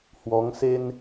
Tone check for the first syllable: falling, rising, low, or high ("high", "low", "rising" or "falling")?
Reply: rising